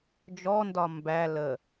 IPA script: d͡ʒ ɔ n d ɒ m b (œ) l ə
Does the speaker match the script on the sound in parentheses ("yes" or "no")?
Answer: no